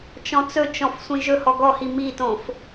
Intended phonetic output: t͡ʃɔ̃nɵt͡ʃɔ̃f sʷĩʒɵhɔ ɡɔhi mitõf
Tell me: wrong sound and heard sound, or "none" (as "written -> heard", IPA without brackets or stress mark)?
n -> t͡s